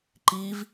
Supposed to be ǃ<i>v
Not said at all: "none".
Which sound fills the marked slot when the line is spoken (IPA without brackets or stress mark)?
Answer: i